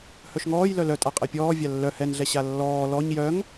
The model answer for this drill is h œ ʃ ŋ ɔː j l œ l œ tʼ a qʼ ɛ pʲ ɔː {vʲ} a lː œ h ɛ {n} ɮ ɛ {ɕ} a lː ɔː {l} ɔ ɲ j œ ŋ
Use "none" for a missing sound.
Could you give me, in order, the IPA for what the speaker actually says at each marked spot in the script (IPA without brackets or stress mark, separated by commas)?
vʲ, n, ɕ, l